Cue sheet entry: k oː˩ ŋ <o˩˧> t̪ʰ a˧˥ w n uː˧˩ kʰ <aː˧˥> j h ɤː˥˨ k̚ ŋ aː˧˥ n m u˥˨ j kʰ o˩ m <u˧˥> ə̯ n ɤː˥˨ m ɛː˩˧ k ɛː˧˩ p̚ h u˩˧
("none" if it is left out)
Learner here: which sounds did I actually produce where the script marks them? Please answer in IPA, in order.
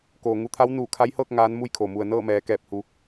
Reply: u˩˧, a˧˥, u˩

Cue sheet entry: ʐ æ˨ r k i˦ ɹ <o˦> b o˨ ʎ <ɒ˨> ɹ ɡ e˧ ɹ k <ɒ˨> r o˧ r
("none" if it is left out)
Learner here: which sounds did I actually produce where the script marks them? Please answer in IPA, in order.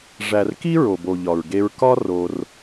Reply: o˨, ɒ˨, ɒ˦

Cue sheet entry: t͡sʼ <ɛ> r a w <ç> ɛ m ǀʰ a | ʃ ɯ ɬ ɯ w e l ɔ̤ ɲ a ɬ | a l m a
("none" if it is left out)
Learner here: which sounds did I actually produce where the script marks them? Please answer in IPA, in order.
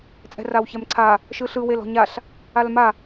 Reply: ɛ̤, ç

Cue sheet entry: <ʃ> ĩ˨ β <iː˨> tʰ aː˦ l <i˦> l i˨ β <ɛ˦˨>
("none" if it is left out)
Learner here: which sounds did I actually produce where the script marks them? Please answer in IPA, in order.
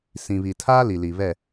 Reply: s, i˨, i˨, ɛ˦˨

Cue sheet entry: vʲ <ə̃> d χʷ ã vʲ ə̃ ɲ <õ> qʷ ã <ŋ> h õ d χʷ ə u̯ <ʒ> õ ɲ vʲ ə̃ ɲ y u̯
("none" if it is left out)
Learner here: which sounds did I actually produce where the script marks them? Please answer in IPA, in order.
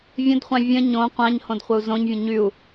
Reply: ə̃, õ, ɲ, z

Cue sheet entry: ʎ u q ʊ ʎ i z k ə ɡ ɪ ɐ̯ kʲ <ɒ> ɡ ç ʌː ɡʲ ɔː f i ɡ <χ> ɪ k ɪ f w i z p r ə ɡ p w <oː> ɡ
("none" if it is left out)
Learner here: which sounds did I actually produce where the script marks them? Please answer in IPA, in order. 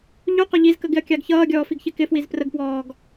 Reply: ɑ, ç, ɔː

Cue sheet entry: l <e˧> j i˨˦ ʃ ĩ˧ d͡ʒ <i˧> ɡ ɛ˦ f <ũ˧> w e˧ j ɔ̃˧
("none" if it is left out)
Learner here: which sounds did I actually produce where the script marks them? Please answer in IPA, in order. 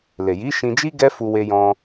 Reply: e˨, i˦, u˧

